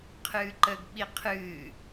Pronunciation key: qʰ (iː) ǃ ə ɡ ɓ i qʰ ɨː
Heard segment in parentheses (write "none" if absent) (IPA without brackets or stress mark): ɨː